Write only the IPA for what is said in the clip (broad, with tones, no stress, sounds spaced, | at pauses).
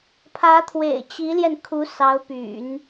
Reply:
pʰ ä˧˥ t̪ʰ w ḛ˨˩ ɪ̯ t͡ɕ i˧˥ l j ɛ˧ n kʰ u˧˥ s ɑ˧˥ ʊ̯ p y̰˨˩˦ n